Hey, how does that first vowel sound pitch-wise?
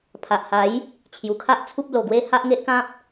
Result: low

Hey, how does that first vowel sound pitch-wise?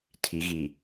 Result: rising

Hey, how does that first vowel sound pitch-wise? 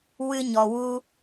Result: high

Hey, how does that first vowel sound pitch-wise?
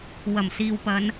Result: low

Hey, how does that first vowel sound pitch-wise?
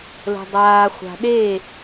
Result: low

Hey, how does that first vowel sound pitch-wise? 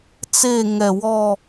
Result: falling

